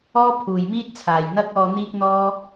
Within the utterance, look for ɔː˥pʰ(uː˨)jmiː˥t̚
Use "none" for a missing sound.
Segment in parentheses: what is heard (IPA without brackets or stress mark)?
uː˨